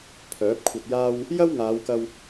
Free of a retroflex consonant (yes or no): yes